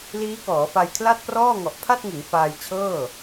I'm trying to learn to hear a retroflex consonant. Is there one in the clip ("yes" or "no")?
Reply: no